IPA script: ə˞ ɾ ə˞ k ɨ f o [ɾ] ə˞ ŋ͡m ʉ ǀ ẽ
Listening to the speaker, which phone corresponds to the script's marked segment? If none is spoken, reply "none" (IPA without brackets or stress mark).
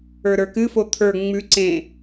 t̪ʰ